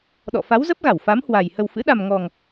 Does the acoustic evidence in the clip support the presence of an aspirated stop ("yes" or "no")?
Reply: no